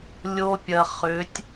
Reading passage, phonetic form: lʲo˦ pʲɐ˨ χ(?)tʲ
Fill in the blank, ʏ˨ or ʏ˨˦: ʏ˨˦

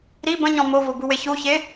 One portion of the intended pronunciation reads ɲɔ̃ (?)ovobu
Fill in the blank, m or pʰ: m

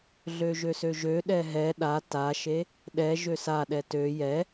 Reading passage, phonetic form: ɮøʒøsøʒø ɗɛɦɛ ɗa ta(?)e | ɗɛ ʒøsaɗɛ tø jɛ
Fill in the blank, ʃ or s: ʃ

